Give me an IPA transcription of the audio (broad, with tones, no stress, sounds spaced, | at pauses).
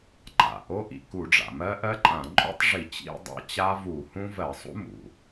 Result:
ǃ a̰˩ ʔ o˦˥ ʔ ḭ˩ k u˧˩˧ ɖ͡ʐ a̰˩ m ɜ˦˥ ʔ ɜ˦˥ ǃʼ ã˧˩˧ ǃʼ ṵ˦˥ tˤ ʐ i˧˩˧ t͡ɕ ḭ˦˥ dˤ a̰˦˥ t͡ɕ a˦˥ v u˧˩˧ h ũ˦˥ v ɜ˧˩˧ sˤ ṵ˦˥ m ṵ˩